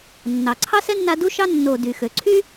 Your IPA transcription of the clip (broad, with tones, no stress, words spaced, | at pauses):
nːɑ˩ ǀʰɑ˥sɛ˥nːa˦ du˥ʃɑ˥ nːo˨ dy˩ xø˩ǀʰy˥